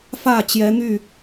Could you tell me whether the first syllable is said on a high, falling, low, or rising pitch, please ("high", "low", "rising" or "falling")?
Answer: falling